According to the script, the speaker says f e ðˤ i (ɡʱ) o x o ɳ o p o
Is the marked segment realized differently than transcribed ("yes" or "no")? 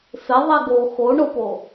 yes